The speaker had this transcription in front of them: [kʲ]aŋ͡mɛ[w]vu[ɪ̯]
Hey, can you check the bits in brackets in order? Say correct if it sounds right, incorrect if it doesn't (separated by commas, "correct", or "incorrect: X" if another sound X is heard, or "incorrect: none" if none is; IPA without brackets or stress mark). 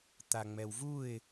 incorrect: t̪, correct, correct